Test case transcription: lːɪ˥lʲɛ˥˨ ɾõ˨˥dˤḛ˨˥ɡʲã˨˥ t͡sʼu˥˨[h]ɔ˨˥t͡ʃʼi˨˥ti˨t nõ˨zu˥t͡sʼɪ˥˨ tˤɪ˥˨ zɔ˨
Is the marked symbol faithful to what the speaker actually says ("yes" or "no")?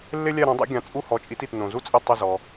yes